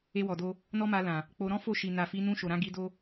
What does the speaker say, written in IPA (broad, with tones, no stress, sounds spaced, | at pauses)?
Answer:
e˧ w ɔ˨ d o˧ | n ɔ˦ m a˧ l ã˨ | k͡p o˧ ɾ ɔ̃˦ f o˦˨ ʃ i˨ n a˨ f i˨˦ n ũ˧ ʃ o˨ ɾ ã˧ ɡ i˧ d o˦